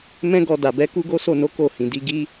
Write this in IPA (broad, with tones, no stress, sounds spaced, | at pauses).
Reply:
m ɛ̃˦ ɡ ɔ˧ d a˨ b ɛ˨˦ k u˦ ɡ o˦ s o˦˨ n o˨˦ k o˦˨ h ĩ˨ d i˧ ɡ i˦